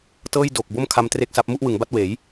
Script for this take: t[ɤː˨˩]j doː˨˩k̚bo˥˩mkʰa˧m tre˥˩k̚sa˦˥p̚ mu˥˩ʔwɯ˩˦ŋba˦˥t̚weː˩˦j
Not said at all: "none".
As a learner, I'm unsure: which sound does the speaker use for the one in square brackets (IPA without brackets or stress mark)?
ɤː˥˩